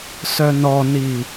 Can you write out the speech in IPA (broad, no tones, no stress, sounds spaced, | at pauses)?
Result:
s œ n ɔ n i